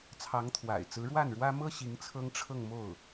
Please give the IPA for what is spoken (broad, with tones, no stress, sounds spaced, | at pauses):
t͡sʰ ɑ˧˥ ŋ t̪ʰ w a̰˨˩ ɪ̯ t͡s ɹ̩˧˥ ɻ w a˥˩ n ɻ w ä˥ m ɤ˥ ɕ i˧˥ ŋ t͡sʰ ɤ˥ ŋ ʈ͡ʂʰ ɤ˥˧ ŋ m o˥˩ ʊ̯